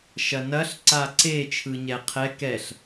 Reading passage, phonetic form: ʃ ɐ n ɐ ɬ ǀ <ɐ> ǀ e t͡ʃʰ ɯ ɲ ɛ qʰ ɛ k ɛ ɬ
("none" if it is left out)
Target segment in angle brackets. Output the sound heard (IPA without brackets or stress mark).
a